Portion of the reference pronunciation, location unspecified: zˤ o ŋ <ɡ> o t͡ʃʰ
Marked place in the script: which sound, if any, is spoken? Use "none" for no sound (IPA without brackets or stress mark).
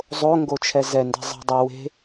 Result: ɡ